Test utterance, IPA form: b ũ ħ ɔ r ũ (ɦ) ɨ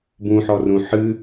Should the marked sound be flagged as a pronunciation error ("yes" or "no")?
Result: yes